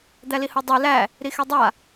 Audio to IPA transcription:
d̪ æ l i h o dˤ e l æ | ɾ i x ɛ dˤ a

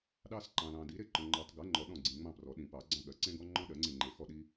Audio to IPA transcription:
ɗ ɑ˦ s ǃ ɑ̃˨ l ɑ̃˨ d i˩˥ ɾ e˦˨ ǃ ɔ̃˨ ŋ͡ǃ ɔ˨˩˦ tˤ ɡ ɜ˩˥ ŋ͡ǃ ɔ˨ ɗ ɔ̃˦˨ ɡ͡ǀ ĩ˨ ŋ͡m ɑ̃˦˨ p r ɔ˨˩˦ ɗ ĩ˨˩˦ p ɑ˨˩˦ ɡ͡ǀ ɑ̃˦ ɠ ɜ˩˥ ǀ ẽ˦ ɡ ɔ˦ ŋ͡ǃ ɔ̃˦ ɗ ɜ˨˩˦ ŋ͡ǀ ẽ˦˨ ŋ͡ǃ e˨˩˦ x ɔ˦˨ ɗ i˦

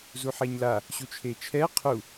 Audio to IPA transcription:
z u ħ ɛ ɲ l a | ɕ u t͡ʃʰ e t͡ʃʰ ɛ qʰ u

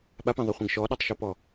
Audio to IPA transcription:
ɓ a p ẽ ðˤ œ χʷ ẽ ɡ ʃ ɔ ɗ ɔ tˤ ʃ ɔ p ɔ

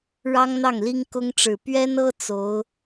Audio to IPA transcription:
ɻ ɑ˥ ŋ n̪ ɑ˥˩ ŋ l i˥ ŋ k ʊ˥ ŋ ʈ͡ʂ ɻ̩˨˩ p ɥ ɛ˥ n ɤ˥ t͡s o˧˥ ʊ̯

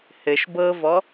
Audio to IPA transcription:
h ɘ ʃ b ɤ v ɔ

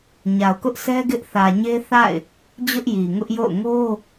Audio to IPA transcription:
ɲ a˨ ʊ̯ k ʊ˦ ʔ sʰ ɛ˦ ɡ ɪ˦ ʔ θ ä˨ ɲ e˦ θ a̰˦˨ ɪ̯ | d͡ʑ ʊ˦ ʔ j i˨ ŋ ʊ˦ ʔ j o̰˦˨ ʊ̯ ŋ o˦

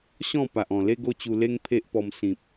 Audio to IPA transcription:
ɕ ɔ̃˥˧ p a˨ ʔ ɔ̃˨˩ l e˦ ɡ o˦ t͡ɕ u˧ l e˦ ŋ pʰ e˦ ʔ p ɔ˧ m s ĩ˨ p̚

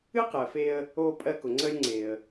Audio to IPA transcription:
ɨ˥ q ɜ˩ f e˧ ə̯ | oː˧ pʼ ɜ˧ k ʊ˩ ŋ͡ǀ əː˧ lʲ ŋ͡ǀ e˩ ə̯

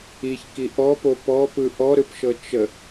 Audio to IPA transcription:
i ç k i ʔ ɔ p o p ɔ p ɯ ʔ ɔ ɾ ɯ p ʃ ɤ t͡ʃ ə

